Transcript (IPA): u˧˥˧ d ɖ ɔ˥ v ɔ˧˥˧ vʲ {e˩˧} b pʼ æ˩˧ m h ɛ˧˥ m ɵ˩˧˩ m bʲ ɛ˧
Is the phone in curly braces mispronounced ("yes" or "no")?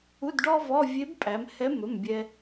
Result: yes